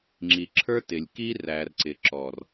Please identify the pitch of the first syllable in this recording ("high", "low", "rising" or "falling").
low